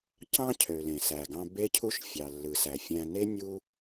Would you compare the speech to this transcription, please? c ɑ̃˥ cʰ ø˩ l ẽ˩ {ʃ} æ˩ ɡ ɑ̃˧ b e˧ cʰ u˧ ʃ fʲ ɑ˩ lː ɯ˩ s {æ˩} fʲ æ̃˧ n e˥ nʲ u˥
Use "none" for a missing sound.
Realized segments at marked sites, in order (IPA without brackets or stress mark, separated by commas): s, æ˩